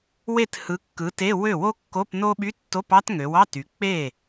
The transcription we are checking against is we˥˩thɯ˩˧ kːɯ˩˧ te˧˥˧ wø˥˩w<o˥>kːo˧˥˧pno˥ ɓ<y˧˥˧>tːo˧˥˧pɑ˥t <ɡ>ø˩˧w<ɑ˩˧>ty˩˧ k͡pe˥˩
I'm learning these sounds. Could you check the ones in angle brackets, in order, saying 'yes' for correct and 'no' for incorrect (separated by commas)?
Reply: yes, yes, no, no